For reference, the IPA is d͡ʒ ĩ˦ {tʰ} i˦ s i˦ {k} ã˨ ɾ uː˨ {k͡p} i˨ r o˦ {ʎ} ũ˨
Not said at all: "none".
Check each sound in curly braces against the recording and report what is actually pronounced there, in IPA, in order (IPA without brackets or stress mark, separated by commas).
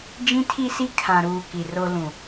tʰ, kʰ, k, l